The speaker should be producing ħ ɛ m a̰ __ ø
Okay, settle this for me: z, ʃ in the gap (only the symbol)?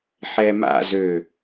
z